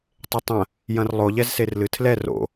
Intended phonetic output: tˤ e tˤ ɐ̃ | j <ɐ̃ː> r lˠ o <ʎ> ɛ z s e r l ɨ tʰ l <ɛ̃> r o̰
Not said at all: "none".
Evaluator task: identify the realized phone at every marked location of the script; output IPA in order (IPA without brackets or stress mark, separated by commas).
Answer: ɐ̃, ʎ, ɛ